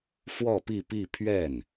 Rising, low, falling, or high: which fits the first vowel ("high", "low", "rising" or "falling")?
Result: falling